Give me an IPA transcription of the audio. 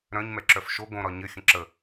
ɾ œ̃ ɲ m ɛ ǁ œ f ʃ o ɡ õ ɾ ɒ ɲ ɘ xʲ ə̃ ǁ ə

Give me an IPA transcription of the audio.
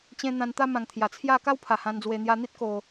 t͡ɕ ẽ˦ n̪ ã˧ n t̪ a˦ m ã˨˩ ŋ t̪ʰ j a˨˩ t͡sʰ j a˥˧ k a˦ w pʰ a˨˩ h ã˧ n d͡z w e˧ n̪ j a˧ n̪ i˦ t̚ k o˨˩

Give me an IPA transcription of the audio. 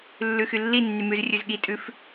lː ʉ x y lː i nː y m ʉ z rʲ ʉ z ɠ i tʼ ʉ f

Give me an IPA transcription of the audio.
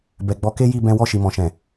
b ɛ˨ ɡ͡b ɔ˨˦ k e˦ j i˦˨ b ɛ̃˧ w ɔ˧ ʃ i˨ m ɔ̃˨ ʃ ɛ̃˨

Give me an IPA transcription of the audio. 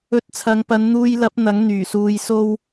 ɵ˨ t̚ t͡sʰ ɐ˨˧ ŋ p ɐ˨˧ n n̪ uː˧ j l ɐ˨˥ p̚ n̪ ɐ˨˥ ŋ n̪ yː˨˩ s uː˨˧ j s o˥ w

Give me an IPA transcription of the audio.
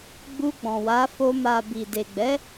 ɡ͡b u˧ ɡ͡b ɔ̃˨ w a˨˦ f o˧ m a˨ b i˨ d e˨ ɡ͡b ɛ˨˦

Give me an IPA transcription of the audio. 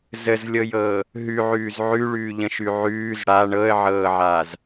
z ə z lʲ ɤ j ɤː | ɦ ʉ ʕ ʉː z ʕ ʉ ɭ ʉː ʎ ə̃ ʃ ʉ ʕ ʉː z ɽ a ɳ ɤ ə̯ ʕ ɤː ʕ aː z

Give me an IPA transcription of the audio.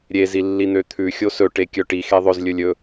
ɾʲ e z i lː i n̪ ø t̪ʰ ʉ xʲ o s ɵ ʈ e kʲ œ ʈ i x e ðˤ ɵ z lʲ ɵ lʲ ɵ

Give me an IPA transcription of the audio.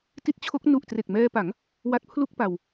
t i˦˥ t̚ t͡ɕʰ o˦˥ k̚ n u˨˩ ʔ t r e˨˩ k̚ m ɛː˧ p a˩˦ ŋ | w a˦˥ t̚ pʰ l u˥˩ k̚ p a˧ w

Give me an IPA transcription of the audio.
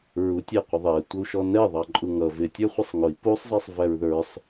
ɹ u tʲ æ qʷ ɪ ðˤ ɛ tʷ ə u̯ ʃ ɔ n ɛ ðˤ ɑ ǃʼ u ŋ ʌ v ɪ tʲ ə˞ χʷ i sˤ ŋ ʊ i̯ p u sˤ zˤ i sˤ v æ ɹ ð ə˞ sˤ

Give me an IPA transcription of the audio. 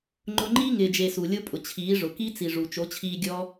ŋ͡ǃ ʊ˧ ŋ͡ǃ iː˦ ŋ ɪː˨ d͡ʒ e˨ s u˨ lʲ o˦ pʼ ʊ˨ t͡ɕʰ iː˨˦ ʐ ʊ˨ k i˦ t͡s i˨ ʐ u˨ t͡ʃ o˨˦ t͡ɕʰ iː˧ ɡʲ ɔ˦

